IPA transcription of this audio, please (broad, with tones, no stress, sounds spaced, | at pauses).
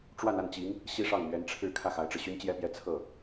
ʈ͡ʂ w a˥˧ n a˥˩ n t͡ɕ i˧˥ ŋ | ɕ i˥ ʂ ɑ˥˩ ŋ m ɥ ɛ˧˥ n ʈ͡ʂʰ ɻ̩˥˧ kʰ ä˥˩ x a˧˥ ɪ̯ ʈ͡ʂ ɻ̩˧ ɕ y˥ n t͡ɕ j ɛ˥ p j ɛ˥˧ t͡sʰ ɤ˥˩